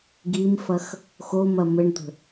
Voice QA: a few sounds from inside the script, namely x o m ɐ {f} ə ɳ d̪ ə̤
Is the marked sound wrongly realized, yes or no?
yes